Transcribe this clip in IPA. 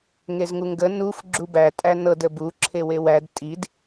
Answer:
ŋ e z ŋ u ŋ ɡ ə n u f ɡ͡ǁ u b æ tʼ æ n ɤ d ə b u ǁʰ e w e w æ d tʼ i d

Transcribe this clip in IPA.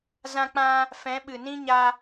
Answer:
z ã˧ k͡p ã˧ | f ɛ̃˨˦ ɓ ɨ˨ n ĩ˦ ɲ a˧

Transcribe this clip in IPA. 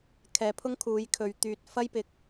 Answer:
kʰ ɛː˨˧ pʰ ʊ˥ ŋ kʰ uː˨˧ j kʰ ɵ˨˧ ɥ t̪ yː˨ t̚ f ɐ˥ j p ɪ˨ k̚

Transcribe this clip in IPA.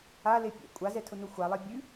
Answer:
a l e pʲ ɛ̰ kʷʼ a z ɛ tʰ ʊ n ʊ xʷ a lˠ ɛ bʲ ʉ

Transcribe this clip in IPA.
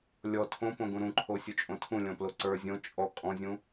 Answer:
lʲ ɔ tʰ õ p õ ɡ ũ ɾ ũ ǃʰ o sʲ u t͡ʃʼ õ tʰ ũ lʲ ɔ̃ p l o ǀ ə˞ zʲ õ t͡ʃʼ ɔ kʼ ɔ̃ zʲ ũ

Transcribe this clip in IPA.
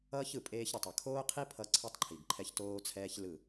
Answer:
ʌː˦ ç ɯ˨ pʼ eː˦ ç ɾ ɯ˨ tˤ ʌ˨ kʰ oː˦ qʰ i˦ pʰ ʌ˦ ǀʰ ɯ˦ tˤ ǃʰ i˨ ɡ ǃʰ ɛ˦ ç t oː˦ t͡sʰ ɛː˦ ç l ɯ˦˨

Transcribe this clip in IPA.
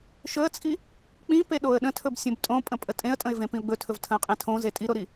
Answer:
ʃ ɵ ə̯ t͡sʼ i | k͡p ĩ p e ɗ o ə̯ ɗ ə̃ tʰ ɵ b sʲ õ b tʼ õ pʼ ə̃ pʼ ə tʼ ẽ ə̯ tʼ ə̃ ɪ̯ v ẽ p ĩ ʊ̯ ɡ͡b ɵ tʰ ɵ v tʰ ə̃ ʊ̯ qʼ ẽ tʰ õ z e tʼ i ɾ o ɾ i

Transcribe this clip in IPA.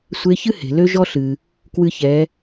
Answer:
sʷ e˧˥ ç ɨ˥ h e̤˩ l ø˥ ʒ ɔ˥ ɬ ɨ˩ | k w ɨ˧ ç ɛ˩˧

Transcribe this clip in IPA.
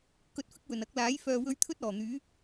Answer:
k ɵ˧ t̚ f ɪ˥ k̚ w ɵ˨˩ n ɐ˨˥ k̚ l aː˨˥ j f œː˨ w ɵ˧ ɥ t̪ʰ ɵ˥ t̚ ɔː˨˩ n̪ yː˨˥

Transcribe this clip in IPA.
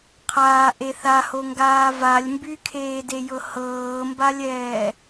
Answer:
qʰ aː ʔ e θ a h o ŋ ɡ aː v a lʲ m b y kʰ eː d e j ɤ h ɤː m b a lʲ ɛː

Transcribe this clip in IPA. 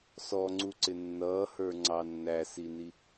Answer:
s ɔ ŋ͡ǀ u ǀ ɪ nː ʌː h ə˞ ŋ͡ǀ ɑ nː æ s i n i

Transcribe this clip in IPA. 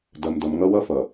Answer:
d ɐ˨ m d ʌ˨ m ŋ ʌ˦ w ʌ˦ f ʌ˨

